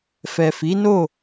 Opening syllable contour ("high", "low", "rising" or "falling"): low